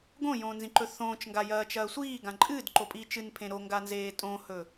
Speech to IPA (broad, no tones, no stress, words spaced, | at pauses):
ɡõjõːnzĩǃɵ θõːt͡ʃŋɡajɐːt͡ʃɐː sʷiːɡã ǃʼɨːdǃopʼiː t͡ʃɨnpʰẽ ɾoŋɡanzeː tʼõhɵ